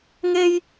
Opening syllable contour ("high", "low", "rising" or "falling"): high